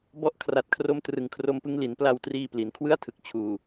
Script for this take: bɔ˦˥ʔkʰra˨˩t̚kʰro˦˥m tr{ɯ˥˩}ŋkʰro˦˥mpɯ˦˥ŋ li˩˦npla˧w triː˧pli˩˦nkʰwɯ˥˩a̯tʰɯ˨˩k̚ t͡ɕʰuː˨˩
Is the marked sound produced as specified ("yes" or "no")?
no